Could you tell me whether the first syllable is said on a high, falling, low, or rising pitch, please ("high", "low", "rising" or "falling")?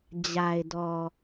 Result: low